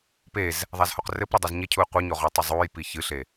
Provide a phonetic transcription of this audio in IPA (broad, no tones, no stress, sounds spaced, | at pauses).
p e z | ðˤ a z h o q r ɘ p ɾ o dˤ e z ɲ e cʰ u ɪ̯ qʷ i ɲ o ʁ ɔ tˤ e zˤ uː j p i ç ɨ ɬ e